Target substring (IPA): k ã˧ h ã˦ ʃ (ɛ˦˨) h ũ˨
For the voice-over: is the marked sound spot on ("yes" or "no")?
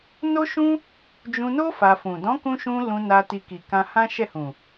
yes